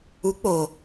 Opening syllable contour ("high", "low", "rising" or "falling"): rising